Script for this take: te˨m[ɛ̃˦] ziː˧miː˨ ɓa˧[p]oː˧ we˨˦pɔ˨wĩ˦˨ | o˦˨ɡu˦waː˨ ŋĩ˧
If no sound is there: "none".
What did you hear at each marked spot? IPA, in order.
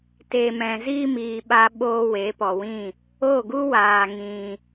ɛ̃˨, ɓ

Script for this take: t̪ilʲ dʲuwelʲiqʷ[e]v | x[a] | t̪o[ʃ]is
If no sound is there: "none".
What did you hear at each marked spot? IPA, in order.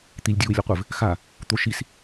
ɘ, a, ʃ

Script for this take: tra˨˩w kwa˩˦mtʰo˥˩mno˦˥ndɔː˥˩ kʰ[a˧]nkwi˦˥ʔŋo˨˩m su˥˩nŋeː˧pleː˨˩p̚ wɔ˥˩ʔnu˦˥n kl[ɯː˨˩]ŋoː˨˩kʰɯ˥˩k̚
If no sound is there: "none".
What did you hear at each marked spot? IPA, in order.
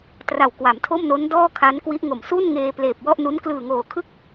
a˦˥, ɯː˨˩

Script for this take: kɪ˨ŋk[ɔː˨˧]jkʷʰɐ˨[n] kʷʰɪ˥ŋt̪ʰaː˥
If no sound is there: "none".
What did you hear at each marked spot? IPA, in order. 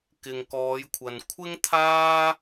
ɔː˨˧, n

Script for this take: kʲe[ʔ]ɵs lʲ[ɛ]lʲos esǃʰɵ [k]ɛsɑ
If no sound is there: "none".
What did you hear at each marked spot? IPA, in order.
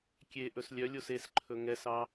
ʔ, œ, ŋ

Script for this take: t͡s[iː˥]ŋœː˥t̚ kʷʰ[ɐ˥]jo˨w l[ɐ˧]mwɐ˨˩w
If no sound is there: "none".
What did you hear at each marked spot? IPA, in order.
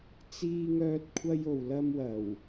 iː˥, ɐ˥, ɐ˥

